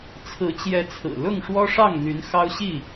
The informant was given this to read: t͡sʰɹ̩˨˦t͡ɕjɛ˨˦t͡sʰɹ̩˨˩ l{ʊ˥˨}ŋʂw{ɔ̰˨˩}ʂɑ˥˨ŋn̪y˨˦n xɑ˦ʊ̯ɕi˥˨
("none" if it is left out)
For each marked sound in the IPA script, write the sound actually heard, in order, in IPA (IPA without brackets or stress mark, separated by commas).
ʊ˥˨, ɔ˦